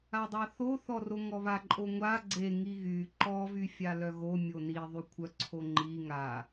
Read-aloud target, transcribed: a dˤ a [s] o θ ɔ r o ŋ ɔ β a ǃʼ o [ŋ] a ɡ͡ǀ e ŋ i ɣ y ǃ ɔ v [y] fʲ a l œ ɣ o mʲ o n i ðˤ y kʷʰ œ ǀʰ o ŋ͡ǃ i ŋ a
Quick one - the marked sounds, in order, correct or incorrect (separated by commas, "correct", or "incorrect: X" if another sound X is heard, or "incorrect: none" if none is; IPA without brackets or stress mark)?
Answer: incorrect: θ, incorrect: ŋʷ, correct